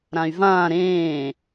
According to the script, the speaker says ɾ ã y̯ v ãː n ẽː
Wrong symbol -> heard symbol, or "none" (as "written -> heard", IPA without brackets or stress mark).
n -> ɾ